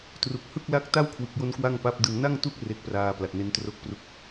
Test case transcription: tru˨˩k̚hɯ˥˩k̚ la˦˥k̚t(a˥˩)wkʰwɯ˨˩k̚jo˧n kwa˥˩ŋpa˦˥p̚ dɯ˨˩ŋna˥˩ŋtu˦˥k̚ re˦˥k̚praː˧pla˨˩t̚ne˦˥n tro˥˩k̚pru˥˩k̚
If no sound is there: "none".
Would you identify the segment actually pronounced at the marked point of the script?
a˥˩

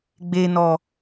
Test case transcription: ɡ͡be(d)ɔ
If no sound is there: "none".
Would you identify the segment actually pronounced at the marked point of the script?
n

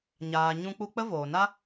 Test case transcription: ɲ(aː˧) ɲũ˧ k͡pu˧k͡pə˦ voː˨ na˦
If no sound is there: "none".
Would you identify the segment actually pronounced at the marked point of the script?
aː˨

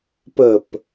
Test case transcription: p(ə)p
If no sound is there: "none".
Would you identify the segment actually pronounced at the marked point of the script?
ə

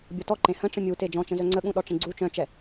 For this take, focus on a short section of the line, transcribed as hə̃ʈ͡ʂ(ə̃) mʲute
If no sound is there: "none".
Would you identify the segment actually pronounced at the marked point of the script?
ə̃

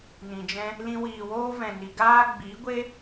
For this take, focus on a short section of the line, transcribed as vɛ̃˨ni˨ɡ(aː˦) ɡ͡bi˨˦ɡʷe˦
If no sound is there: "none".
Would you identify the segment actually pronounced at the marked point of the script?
aː˦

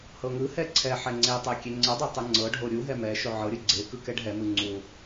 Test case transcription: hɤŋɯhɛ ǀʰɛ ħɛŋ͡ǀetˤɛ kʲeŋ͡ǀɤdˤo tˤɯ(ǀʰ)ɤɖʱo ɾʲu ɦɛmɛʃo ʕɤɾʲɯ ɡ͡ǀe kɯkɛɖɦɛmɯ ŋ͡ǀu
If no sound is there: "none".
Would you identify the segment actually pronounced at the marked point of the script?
ŋ͡ǀ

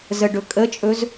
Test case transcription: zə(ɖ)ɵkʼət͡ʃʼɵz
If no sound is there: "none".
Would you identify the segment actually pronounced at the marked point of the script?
ɖ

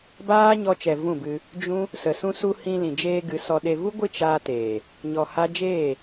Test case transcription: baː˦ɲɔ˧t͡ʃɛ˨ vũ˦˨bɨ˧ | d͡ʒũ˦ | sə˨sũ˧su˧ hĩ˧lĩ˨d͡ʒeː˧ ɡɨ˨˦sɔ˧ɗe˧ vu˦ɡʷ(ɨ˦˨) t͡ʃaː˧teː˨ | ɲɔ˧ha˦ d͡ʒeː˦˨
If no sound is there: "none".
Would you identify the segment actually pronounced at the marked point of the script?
ɨ˦˨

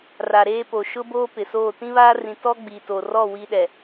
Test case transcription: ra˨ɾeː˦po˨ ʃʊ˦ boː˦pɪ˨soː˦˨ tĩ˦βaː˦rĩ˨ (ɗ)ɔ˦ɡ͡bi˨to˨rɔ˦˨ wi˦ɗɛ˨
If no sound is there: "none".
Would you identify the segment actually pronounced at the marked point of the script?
t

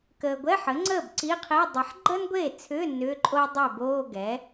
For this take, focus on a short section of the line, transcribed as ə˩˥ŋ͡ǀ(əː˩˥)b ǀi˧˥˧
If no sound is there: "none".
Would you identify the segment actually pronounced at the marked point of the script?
əː˥˩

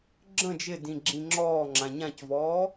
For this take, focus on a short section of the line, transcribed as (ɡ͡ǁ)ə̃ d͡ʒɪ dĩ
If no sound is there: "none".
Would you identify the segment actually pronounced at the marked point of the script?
ɡ͡ǁ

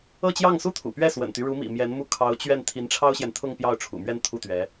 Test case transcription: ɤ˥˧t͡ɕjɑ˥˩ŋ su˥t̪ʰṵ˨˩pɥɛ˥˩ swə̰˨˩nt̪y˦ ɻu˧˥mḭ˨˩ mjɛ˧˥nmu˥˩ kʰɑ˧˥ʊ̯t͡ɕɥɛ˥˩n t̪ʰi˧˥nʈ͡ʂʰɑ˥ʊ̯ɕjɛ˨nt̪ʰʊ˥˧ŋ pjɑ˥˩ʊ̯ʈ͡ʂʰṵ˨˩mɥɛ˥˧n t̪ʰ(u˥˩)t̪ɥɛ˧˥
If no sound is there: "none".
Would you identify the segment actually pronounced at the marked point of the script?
u˥˩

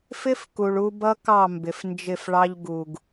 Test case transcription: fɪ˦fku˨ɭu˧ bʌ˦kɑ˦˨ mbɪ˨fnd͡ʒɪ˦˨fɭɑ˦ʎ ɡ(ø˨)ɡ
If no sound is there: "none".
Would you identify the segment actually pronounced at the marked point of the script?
u˨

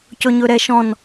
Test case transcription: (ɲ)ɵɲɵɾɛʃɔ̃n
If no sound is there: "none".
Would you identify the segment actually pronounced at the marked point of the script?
c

